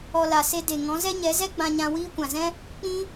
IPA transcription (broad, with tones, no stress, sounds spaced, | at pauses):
ɔ˧ l a˨ s e˧ d e˨ ŋ ɔ̃˨˦ z ɛ˦ ɲ ɛ˨˦ z ɛ˦ ɡ͡b ã˧ ɲ ã˧ w iː˧ kʷ ã˨ z ɛ̃˦ | k͡p ĩ˦